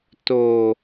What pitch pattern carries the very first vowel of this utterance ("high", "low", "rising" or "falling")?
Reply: low